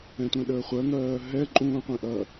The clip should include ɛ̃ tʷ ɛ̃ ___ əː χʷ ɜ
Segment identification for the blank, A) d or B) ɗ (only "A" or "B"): B